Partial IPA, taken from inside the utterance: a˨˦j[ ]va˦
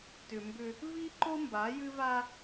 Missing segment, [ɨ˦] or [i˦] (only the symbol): ɨ˦